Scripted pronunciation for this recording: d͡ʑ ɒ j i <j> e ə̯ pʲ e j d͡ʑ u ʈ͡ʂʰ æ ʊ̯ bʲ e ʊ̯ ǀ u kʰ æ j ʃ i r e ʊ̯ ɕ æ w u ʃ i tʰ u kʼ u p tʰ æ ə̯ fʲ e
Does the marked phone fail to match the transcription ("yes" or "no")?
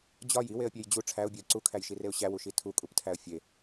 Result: yes